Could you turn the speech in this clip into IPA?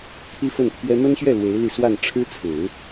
t̪ʰ i˥ f ə˥˩ n t̪ʰ ɥ ɛ˥ m ə˥ n ɕ ɥ ɛ˥˩ l w e˧˥ ɪ̯ l i˧ s w a˥˩ n ʈ͡ʂʰ ɻ̩˥ t͡sʰ ɹ̩˨˩˦

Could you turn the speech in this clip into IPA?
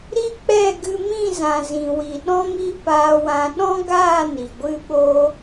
ɾ i˦ k͡p ɛ˦˨ ɡ ɨ˧ m ĩ˦˨ z ã˨ z ĩ˨ w i˨ ɗ ɔ̃˧ m i˧ p aː˧ w ã˧ ɗ ɔ̃˦ ɡ aː˦˨ n i˨ ɡʷ ɨ˦ ɓ oː˦

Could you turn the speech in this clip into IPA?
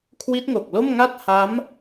kʰ w i˦˥ t̚ ŋ o˨˩ k̚ l o˥˩ m ŋ a˥˩ t̚ h a˦˥ m

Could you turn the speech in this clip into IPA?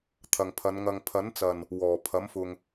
t̪ʰ ɐ˨ ŋ pʰ ɐ˨˧ n ŋ ɐ˨ ŋ pʰ ɐ˨˥ n t͡s ɐ˨˩ n | w ɔː˨˩ pʰ ɐ˨˥ m f ʊ˨ ŋ

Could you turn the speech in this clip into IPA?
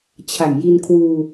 t͡ɕʰ a˨˩ ŋ j i˧ n kʰ w uː˧

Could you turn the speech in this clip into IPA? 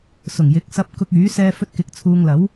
s ʊ˨˩ ŋ j ɪ˨˥ k̚ s ɐ˧ p̚ k ʊ˧ k̚ yː˨˥ s ɛː˧ f ɵ˧ t̚ k ɪ˨˥ k̚ t͡sʰ uː˧ ŋ l ɐ˨˥ w

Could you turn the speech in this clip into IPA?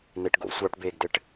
n̪ e ʈ ɡ o̰ sʷ ɑ ʈ b eː ɡ d ɘ ʈ

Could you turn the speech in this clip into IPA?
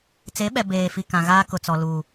t͡s e˨˦ ɓ ɛ˨ b eː˨ f i˨ k ã˨ ɣ aː˦ k ʊ˨ t͡s ɔ˨ l u˨

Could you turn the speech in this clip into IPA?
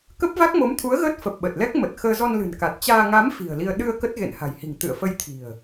k ə˦˥ p̚ v a˦˥ k̚ m o˨˦ m t̪ʰ u˨˦ ə̯ ɣ əː˦˥ t̚ f ə˨˩ p̚ ɓ ə˨˩ t̚ l ɛ˦˥ k̚ m ə˨˩ t̚ x əː˧ z ɔ˧ n l ɨ̤˨˩ n k a˨˩ t̚ t͡ɕ aː˧ ŋ a˨˦ m f i̤˨˩ ə̯ l i˧ ə̯ ɗ ɨ˧ ə̯ k ə˦˥ t̚ ɣ ḛ˧˨ n h a̤˨˩ j h i̤˨˩ ŋ t̪ ɨ̰˧˨ ə̯ f ə˧ j t̪ʰ i̤˨˩ ə̯

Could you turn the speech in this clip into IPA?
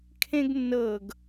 kʰ ẽ ɡ nː ɤ ɡ

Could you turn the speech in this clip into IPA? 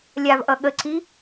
lʲ a v ʔ ʌ ɠ ə ǀ i

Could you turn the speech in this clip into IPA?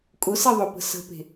kʼ ʊ s e ðˤ ʊ p ə̤ s ə̤ p e̤

